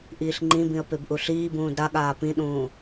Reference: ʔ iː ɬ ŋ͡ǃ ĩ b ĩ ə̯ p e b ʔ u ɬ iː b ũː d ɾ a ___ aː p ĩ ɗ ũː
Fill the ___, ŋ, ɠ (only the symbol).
ɠ